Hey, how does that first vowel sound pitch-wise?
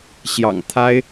low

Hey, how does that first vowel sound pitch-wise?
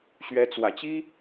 rising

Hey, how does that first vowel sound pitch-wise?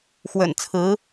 low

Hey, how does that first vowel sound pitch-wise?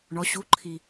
rising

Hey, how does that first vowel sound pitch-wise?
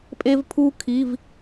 high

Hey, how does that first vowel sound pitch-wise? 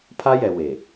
high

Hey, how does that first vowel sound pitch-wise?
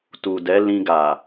low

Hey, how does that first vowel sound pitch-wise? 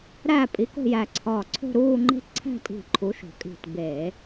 falling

